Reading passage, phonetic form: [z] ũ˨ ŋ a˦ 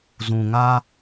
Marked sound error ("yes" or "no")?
no